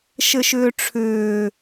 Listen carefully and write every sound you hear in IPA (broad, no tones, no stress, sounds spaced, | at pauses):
ʃ ɘ ʃ ʏː ʈ͡ʂʰ ʏː